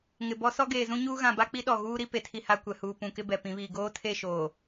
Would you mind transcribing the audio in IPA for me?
ŋ ɪ˨ b ɔ˦ s ɔ˦ ɡ eː˨ z ũ˦ ɲ uː˦ ɣ ã˨ b a˦ k͡p i˦ ɗ ɔ˨ ɣ uː˦ ɾ i˦ p e˨ tʰ i˦ h a˦ kʷ ɛ˨ h uː˨ p ũ˨ k ɪ˦ b ɛ˨ p ĩ˨˦ β iː˨ ɡ oː˦ tʰ e˦˨ ʃ oː˨

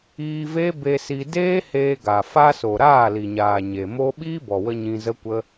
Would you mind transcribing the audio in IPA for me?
iː˧ v e˦ b e˧ s i˧ d eː˦ h eː˧ ɡ a˨ f a˧ s o˨ ɾ aː˦˨ l i˨ ɲ aː˨ ɲ e˨ m o˦ ɓ iː˦ b ɔ˨ w ə˧ ɲ ĩ˧ z ə˦ kʷ ə˦

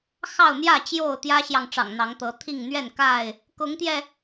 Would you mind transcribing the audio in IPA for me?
x ɑ˥˨ ʊ̯ n̪ j ä˥˨ t͡ɕ j o˥˨ ʊ̯ t̪ j ä˦ ɕ j ɑ˨ ŋ ʈ͡ʂ ɑ̰˨˩ ŋ n̪ ɑ˨˦ ŋ t̪ ɤ˨˦ t̪ʰ i˥˨ ŋ n̪ ɥ ɛ˥˨ n k a˥˨ ɪ̯ | k ʊ˨˦ ŋ t̪ j ɛ˧

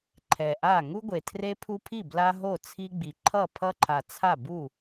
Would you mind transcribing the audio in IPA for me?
ǃʰ ɛ˨˩ ʔ a˥˩ ŋ u˦ ɡʷ e˨˩ tʰ r e˦ pʰ u˦ pʰ i˥˩ b l a˦ ɦ o˥˩ t͡sʰ i˦ ɡ͡b i˨˩ ǃʰ ʌ˥˩ pʰ ʌ˦ ǃʰ a˨˩ t͡sʰ a˥˩ b u˥˩

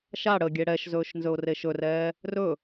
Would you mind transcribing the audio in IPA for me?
ʃ a ɽ ə ɡʲ e ɽ ɛ ʃ z ɵː ʃ n z ɵ ʊ̯ r e ʃ ɵ r ɛː | r ɵ

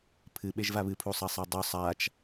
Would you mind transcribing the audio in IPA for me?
pʰ ɨ ɓ e ʒ v a β ɨ pʰ u sˤ ɐ sˤ e dˤ ʉ sˤ a t͡ʃ

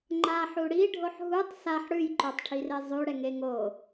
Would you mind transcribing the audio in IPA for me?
ŋ͡ǃ a ħ u ɽ i ɖʱ o ħ ɦ u tˤ s a ħ ɽ ʉ j ǃ o tˤ ʈʰ i r e zˤ ʉ ɽ ɛ ŋ e ŋ o

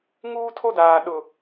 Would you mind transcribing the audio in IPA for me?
ŋ uː˦ tʰ o˦ d aː˨ ɗ ʊ˨

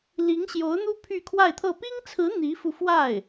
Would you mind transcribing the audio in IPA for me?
l i˧˥ ŋ ɕ j o˧˥ ʊ̯ n̪ u˥ pʰ y˥˧ kʰ w a˥˧ ɪ̯ t̪ʰ ɤ˥˩ p i˥ ŋ t͡sʰ ɹ̩˧˥ n̪ i˧˥ f u˧ f w a˥˩ ɪ̯

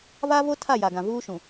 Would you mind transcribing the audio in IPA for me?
v a˦ v o˦ tʰ a˦˨ j a˨ ɡ ã˨ v uː˦ ʃ ũ˨

